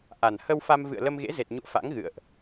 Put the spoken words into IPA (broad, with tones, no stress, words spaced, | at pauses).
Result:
ʔa˨˩n hə˧w fa˧mvɨ̰˧˨ə̯ lə˧mɣḛ˧˥ze˨˩t̚ɲṵ˧˨ə̯ fa̰˧˥ŋɣɨ̰˧˨ə̯ʔ